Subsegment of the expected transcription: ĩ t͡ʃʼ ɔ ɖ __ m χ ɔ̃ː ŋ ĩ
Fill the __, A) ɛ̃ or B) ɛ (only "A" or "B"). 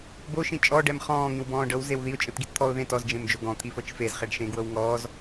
B